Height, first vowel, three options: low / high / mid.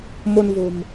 mid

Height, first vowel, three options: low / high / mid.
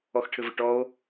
mid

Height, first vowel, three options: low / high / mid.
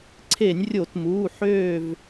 mid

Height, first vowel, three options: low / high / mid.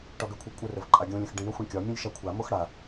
low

